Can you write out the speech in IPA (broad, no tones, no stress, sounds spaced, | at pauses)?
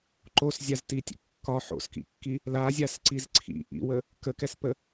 ǃ o s zʲ a z t i tʲ ə̰ kː ɒ ħ o̰ s k ḭ kː i | l a zʲ a s ǀ i z ǀʰ ḭ ʔ ḭ w ə | k ə k ɛ s p ə